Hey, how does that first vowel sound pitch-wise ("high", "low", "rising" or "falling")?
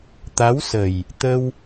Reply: rising